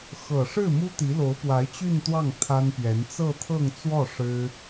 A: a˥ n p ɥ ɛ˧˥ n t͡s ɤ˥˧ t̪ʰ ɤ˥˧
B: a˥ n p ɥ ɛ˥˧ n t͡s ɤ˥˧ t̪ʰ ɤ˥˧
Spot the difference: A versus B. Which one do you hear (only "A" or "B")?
A